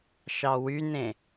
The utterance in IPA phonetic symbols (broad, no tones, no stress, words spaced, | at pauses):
ʃɑwynẽ